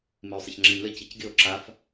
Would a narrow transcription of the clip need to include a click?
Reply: yes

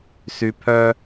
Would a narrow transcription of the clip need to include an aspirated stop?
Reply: yes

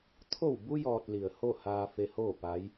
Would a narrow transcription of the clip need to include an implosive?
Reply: no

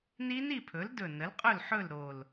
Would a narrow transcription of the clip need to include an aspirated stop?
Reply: yes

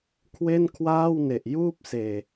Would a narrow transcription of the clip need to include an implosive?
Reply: no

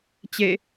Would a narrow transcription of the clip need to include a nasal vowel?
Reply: no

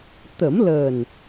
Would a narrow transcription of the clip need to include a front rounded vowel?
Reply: no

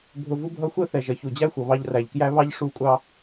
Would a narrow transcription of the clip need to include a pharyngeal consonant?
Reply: no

